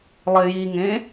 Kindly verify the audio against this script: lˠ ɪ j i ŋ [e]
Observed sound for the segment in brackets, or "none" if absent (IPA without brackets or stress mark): ẽ